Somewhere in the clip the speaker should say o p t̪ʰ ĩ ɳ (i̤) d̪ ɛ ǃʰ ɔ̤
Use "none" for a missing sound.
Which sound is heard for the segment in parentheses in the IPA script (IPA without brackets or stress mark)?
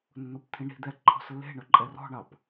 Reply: i̤